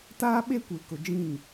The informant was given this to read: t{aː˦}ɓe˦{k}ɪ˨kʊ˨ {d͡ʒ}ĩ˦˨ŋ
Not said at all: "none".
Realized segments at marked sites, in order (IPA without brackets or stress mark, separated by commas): aː˦, kʷ, d͡ʒ